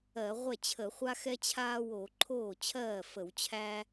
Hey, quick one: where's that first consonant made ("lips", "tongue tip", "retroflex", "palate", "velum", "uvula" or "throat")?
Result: uvula